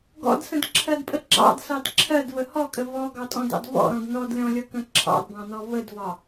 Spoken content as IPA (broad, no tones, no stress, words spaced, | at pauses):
ɡɔ̰dsə̃dǁʰɜdpʼə ɡ͡ǁɑ̰dsɑd ǁʰɜdvə hɔkʼə vɔɡɑtʼɔ̃dɑ̰d vɔ̰ɾɔ̃d nɔdlʲɔ̃lʲʌkə̃ ǁʰɑ̰dbɑ̃nɔ vədvɒ